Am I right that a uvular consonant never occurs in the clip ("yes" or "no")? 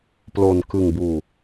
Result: yes